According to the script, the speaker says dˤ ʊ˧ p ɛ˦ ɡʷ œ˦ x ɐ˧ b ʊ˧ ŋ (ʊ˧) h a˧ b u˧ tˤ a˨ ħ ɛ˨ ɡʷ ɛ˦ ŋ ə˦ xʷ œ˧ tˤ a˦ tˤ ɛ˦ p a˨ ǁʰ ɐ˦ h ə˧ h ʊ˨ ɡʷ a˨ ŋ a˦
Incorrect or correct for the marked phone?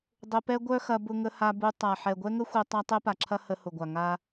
incorrect: ə˧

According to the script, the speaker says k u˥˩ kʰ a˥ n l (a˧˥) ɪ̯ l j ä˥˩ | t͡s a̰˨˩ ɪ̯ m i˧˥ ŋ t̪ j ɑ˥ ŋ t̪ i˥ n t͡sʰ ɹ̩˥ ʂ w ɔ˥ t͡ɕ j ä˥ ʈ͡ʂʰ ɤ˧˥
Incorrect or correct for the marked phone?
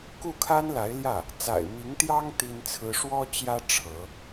correct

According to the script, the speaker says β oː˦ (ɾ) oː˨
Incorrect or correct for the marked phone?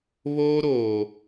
correct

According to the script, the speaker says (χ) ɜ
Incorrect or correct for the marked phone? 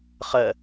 correct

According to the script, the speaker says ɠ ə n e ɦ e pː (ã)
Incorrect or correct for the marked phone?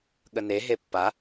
incorrect: a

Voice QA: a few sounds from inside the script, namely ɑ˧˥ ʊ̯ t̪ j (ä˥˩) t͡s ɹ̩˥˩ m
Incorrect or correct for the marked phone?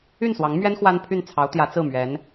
incorrect: ä˧˥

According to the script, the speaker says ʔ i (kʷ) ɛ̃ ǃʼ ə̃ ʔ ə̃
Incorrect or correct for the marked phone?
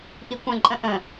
correct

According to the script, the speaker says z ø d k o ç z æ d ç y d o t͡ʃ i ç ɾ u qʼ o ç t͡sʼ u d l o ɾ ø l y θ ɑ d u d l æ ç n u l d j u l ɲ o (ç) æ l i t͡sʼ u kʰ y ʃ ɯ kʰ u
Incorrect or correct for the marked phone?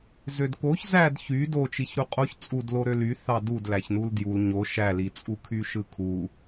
incorrect: ʃ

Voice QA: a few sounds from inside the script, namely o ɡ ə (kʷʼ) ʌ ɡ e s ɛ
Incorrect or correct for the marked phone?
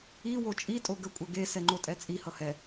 correct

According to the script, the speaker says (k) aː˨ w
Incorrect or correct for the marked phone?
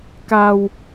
correct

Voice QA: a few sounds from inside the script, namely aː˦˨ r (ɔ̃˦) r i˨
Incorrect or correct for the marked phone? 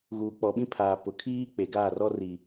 incorrect: ɔ˦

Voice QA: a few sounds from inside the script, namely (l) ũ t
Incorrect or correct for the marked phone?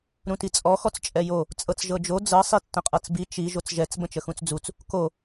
incorrect: ɾ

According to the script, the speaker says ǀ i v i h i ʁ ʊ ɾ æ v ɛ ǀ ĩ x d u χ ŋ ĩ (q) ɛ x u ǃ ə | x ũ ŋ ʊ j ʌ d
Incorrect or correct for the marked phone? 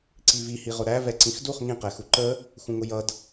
correct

